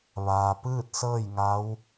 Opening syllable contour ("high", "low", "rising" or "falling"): low